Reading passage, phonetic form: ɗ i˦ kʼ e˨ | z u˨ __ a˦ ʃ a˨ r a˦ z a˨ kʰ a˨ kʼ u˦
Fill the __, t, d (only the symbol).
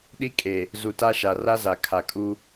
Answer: t